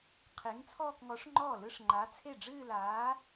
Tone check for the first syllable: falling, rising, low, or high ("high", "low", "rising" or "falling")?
rising